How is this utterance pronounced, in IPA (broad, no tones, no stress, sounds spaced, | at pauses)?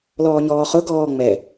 l ɔː ɲ ɔː χ ʊ ɡ ɔː ŋ͡m ɛ